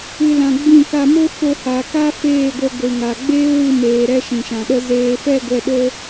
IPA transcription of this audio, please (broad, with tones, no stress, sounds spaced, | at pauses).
ɨ˧ l ã˧ ɡ͡b ĩ˦˨ k a˧ m o˦ f o˧ h a˨ k a˦ f eː˦˨ ɡʷ ə˧ ɡʷ ɨ˨ ŋ a˨ ɡ͡b eː˦ w ɨ˧ m eː˨ ɾ ɛ˦ ʃ ĩ˨ ʃ ã˨ ɗ ə˦ z eː˨ f ɛ˦˨ ɡʷ ɛ˨ ɗ o˧